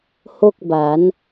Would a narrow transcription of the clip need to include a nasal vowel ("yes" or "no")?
no